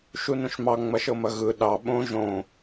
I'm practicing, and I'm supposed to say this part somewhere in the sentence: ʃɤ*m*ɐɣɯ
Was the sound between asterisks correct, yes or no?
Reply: yes